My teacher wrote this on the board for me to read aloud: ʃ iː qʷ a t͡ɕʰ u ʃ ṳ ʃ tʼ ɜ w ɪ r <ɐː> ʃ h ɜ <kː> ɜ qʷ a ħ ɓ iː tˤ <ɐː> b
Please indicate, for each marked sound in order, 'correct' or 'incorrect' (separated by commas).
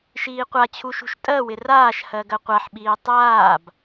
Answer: incorrect, incorrect, incorrect